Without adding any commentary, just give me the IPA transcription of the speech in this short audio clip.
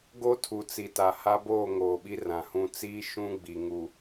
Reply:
ɡ o˦ tʰ u˨ t͡s i˨ t a˨ h a˦ b oː˦˨ ŋ oː˨ ɓ i˦ r ã˨ h ũ˦˨ t͡s iː˦ ʃ ũ˦ ɡ͡b i˨ ŋ u˨

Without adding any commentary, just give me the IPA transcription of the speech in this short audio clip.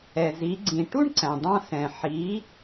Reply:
ɛ˩ z i˩˧ ɡ͡ǀ ĩ˩ ʈ u˥ ɳ ǀ æ̃˩ dˤ ɑ̃˧ s ɛ̃˩ ħ i˩˧

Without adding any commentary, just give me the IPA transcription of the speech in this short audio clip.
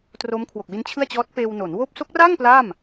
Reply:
t r o˦˥ m kʰ w o˨˩ k̚ w i˦˥ n t͡ɕʰ ɯ˥˩ a̯ t͡ɕ ɔː˦˥ t̚ p eː˧ w n o˩˦ n w oː˦˥ p̚ s o˦˥ k̚ r aː˥˩ ŋ p l aː˥˩ m

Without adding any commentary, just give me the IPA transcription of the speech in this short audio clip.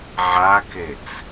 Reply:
ʕ a k e t͡s

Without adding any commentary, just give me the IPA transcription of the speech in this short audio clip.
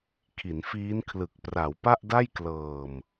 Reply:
kʰ i˩˦ n f iː˦˥ n kʰ l ɯ˨˩ k̚ p r a˩˦ w p a˥˩ ʔ d a˥˩ j k l ɤː˨˩ m

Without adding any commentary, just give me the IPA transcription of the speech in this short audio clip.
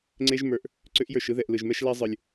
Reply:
ŋ͡ǀ e˦ ʒ m ə˞˨ ʔ | ǀ ʏ˦ ʔ j ə˞˨ ʃ ɯ˧ ð ɛ˨ ʔ l ɯ˨ ʒ m ɛ˦ ʃ l æ˦ zˤ ɯ˨ lʲ

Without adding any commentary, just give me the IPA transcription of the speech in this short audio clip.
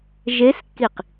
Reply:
ʒ e s kː i q

